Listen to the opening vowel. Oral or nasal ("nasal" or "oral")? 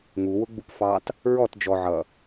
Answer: oral